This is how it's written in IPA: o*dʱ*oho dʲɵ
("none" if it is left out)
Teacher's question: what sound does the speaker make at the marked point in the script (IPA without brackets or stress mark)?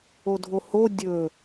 dʱ